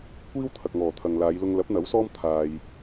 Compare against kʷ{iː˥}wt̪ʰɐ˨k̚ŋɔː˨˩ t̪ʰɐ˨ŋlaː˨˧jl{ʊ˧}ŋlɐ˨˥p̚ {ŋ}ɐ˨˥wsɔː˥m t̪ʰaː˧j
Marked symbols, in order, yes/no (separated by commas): yes, yes, no